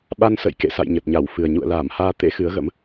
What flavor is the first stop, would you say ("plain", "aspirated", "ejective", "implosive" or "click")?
implosive